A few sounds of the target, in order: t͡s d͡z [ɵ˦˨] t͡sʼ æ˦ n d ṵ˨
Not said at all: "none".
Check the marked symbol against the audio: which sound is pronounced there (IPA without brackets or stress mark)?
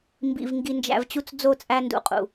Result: o˦˨